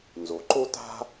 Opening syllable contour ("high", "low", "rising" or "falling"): low